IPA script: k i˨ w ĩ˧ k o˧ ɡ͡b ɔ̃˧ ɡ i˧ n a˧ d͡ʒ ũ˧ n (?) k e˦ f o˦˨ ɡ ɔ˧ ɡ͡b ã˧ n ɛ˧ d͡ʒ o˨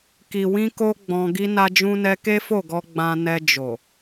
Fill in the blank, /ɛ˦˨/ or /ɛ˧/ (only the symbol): ɛ˧